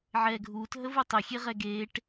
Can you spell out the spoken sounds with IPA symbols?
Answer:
ʕ ɛː ɡʱ uː t ɦ ə v u tˤ ʏ xʲ e ʁ ɛ ɡ eː ʈ

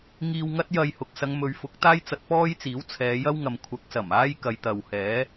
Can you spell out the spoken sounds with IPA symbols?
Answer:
ŋ iː˧ w ŋ ɐ˥ t̚ j ɐ˧ j h ʊ˨ k̚ s ɐ˨˧ ŋ m ɵ˨˧ ɥ f ʊ˨˥ k̚ t̪ aː˥ j t͡s ɐ˧ t̚ p ɔː˥ j t͡s iː˨˥ w t͡sʰ ɛː˨˧ j ɐ˥ w ŋ ɐ˨ m kʷʰ ɐ˨˥ k̚ s ɐ˨˩ m aː˥ j k ɐ˨˧ j t̪ ɐ˨ w h ɛː˨˥

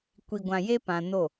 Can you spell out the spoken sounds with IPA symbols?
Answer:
kʷ i˨ ɡʷ ã˨ j e˦ p ã˨ n o˦˨

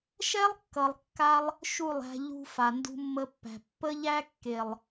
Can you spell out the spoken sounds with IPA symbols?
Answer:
ʃ ɛ˦ lˠ kː ʌ˨ lˠ kː a˧ lˠ | ʃ u˦˨ lˠ æ̤˧ ʎ ṳ˧ f a˨ n d ṳ˧ mː ə˧ pː æ̤˨ pː ə˦ ʎ æ˦ kː e˨ lˠ

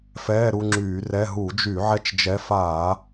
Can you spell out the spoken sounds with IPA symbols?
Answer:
f ɛː˧˥˧ ɾ u˧ ŋ͡ǁ yː˧˩˧ r ɛ˧˥˧ ɦ u˧˩˧ d͡ʒ y˧˩˧ ʕ ɛ˧ t͡ʃ d͡ʒ ɛ˨˥ f aː˧˩˧

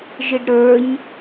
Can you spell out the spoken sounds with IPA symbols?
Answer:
ʒ ɨ ɖ ɾ ə˞ ɲ

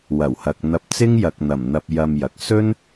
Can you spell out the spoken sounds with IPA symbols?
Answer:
w ɐ˨˩ w h ɐ˨ k̚ n̪ ɐ˧ p̚ t͡s ɪ˥ ŋ j ɐ˨ k̚ n̪ ɐ˨˩ m n̪ ɐ˧ p̚ j ɐ˧ m j ɐ˨ k̚ s ɵ˥ n

